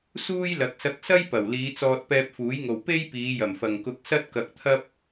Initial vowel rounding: rounded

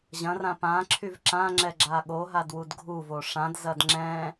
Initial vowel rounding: unrounded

